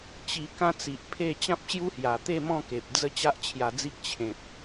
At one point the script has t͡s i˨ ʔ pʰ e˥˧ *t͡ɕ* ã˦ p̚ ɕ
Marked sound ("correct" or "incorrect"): correct